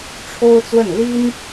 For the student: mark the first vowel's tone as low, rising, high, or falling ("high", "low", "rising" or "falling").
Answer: high